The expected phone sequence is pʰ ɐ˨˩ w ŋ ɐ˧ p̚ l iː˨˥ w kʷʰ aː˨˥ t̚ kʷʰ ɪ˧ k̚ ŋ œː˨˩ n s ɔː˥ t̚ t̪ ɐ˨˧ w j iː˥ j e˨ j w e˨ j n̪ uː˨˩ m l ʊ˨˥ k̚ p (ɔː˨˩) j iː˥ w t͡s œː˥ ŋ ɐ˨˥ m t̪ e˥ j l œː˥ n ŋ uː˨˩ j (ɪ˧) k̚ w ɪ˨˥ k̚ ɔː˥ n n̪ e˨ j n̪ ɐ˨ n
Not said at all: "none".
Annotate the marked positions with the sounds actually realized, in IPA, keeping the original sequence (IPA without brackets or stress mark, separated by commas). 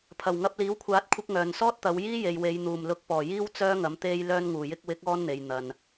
ɔː˨˩, ɪ˧